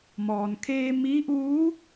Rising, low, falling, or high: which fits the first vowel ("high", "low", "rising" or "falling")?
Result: low